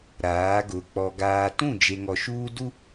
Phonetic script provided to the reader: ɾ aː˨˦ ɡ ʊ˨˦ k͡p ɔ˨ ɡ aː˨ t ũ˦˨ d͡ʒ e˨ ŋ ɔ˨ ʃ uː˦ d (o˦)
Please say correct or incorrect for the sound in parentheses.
incorrect